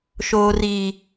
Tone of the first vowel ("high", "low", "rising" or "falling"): low